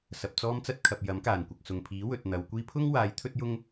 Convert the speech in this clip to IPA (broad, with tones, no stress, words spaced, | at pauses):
sɐ˨p̚t͡sɔː˥mt͡sɐ˥t̚kʰɐ˨p̚ jɐ˨˥mkaː˨˩nkʷɐ˨k̚ sʊ˨˩ŋpʰiː˨˥ wɵ˨t̚n̪ɐ˨˧w kʷiː˧pʰʊ˥ŋwaː˨˧j t̪ʰɵ˥t̚jʊ˥ŋ